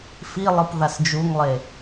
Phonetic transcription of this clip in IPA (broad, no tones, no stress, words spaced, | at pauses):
filˠɯp ðasd͡ʒuŋlˠe